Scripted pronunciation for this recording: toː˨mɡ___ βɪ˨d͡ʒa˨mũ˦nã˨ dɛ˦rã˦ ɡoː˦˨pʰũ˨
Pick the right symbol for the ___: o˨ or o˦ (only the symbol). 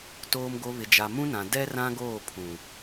o˨